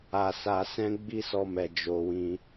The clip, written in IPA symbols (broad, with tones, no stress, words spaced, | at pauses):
a˧sa˧sɛ̃˦ ɡ͡bi˦sɔ˧mɛ˨ d͡ʒo˧wĩ˧